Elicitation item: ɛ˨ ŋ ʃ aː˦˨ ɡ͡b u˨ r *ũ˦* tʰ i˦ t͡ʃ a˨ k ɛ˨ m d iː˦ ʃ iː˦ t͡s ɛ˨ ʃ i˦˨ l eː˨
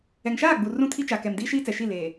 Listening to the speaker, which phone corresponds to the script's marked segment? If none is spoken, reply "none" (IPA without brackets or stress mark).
ũ˦